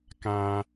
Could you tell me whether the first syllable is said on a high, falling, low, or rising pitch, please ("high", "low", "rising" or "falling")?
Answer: low